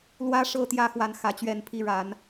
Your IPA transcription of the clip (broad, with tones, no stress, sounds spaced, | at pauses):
l w ä˦ ʂ ɤ˥˨ t̪ j ä˥˨ x w a˦ n x ä˨˦ t͡ɕ ɥ ɛ˥˨ n pʰ i˦ ɻ a˨˦ n